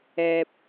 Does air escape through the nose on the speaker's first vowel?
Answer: no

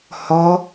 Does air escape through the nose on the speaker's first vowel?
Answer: no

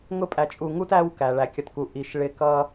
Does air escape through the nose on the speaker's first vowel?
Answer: no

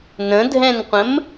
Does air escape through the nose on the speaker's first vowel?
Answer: yes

